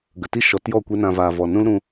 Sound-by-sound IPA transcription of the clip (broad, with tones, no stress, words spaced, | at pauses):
ɡə˨ti˦ʃɔ˨˦tjɔ˦˨ kʷe˦nã˧vaː˨ vɔ˨nũ˦lɾũ˧